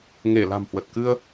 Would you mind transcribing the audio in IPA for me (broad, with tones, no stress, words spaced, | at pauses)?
ŋe˧˩ la̤˨˩mhwə˨˩t̚kɨ˧ə̯